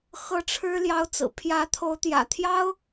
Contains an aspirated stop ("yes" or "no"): yes